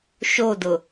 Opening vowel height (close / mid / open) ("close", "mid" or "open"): mid